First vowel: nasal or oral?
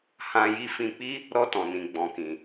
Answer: nasal